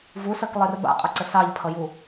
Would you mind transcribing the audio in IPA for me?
vusɜklˠer ba̰qʼʌǀə sɑʎpʰʌju

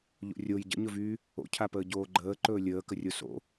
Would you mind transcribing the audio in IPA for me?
ʎo̰rʲoj ɟə̰ɲɵvyː | o̰cʰapəː ɟoːɡ͡ǃəːǃɵː lʲəːkərʲo so̰

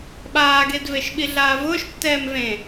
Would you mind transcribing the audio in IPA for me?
ɓaːɡed veʃɓiɮaːvʊːʃ tːɛːmvẽ

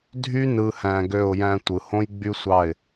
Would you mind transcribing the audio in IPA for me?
dʱy˦nɯ˨hæ̃˨ ɡø˦˨ʊ̯jæ̃˦tʷɯ˨ hõ˦jɡ͡by˦sʷɑ˦˨ɪ̯

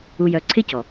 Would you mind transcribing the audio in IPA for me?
u˨jœ˨ǀʰɪ˦cɔ˨

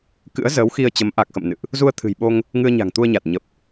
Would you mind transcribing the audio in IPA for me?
kɨ̰˧˥ə̯zəː˨˦wxi˧ə̯t͡ɕə˨˦m ʔa˨˩k̚xə̰˧˨m nɨ̰˧˨ʔ | zu˧ə̯t̪ʰɨ̤˨˩jɓo˧ŋ | ŋɨ˧ə̯ɲa̤˨˩ŋt̪u˧ə̯ɲa˨˩t̚ ɲə˨˩p̚

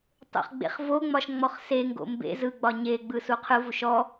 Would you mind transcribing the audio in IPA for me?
tˤo̰χɡ͡bḛχvoŋ͡mɒʃ ŋ͡mɔχseŋɡo̰ mbḛ zɯɡ͡bɒ ɲeɡ͡bɯ suqʰɯvuʃ ɔ

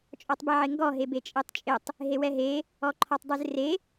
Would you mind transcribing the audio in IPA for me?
t͡ʃʼɔtˤbɛʕɪŋɡɔ ɦebet͡ʃʼetˤt͡ʃʼɪtˤ | ɦewɛɦe | ɔǃʰɔtˤdˤʉzre

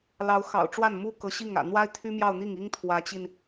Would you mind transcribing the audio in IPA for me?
lɑ˧˥ʊ̯ xɑ̰˨˩ʊ̯ ʈ͡ʂwa˥˩nmu˥kɤ˧˥ɕi˥˩ŋ ä̰˨˩ n̪wa˥ɪ̯t̪ʰy˥mjɑ˥˧ʊ̯n̪i˥˩ŋ i˥ŋt̪ʰwä˧˥t͡ɕi˧n

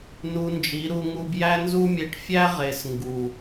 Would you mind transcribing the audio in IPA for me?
nu˧nd͡ʒi˨˦ɾu˧ ŋu˧bjæ˦nzu˦mʲe˧ʈ fʲæ˦ʁe˨s ŋɡu˨

